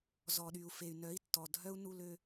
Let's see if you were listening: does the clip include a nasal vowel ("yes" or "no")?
no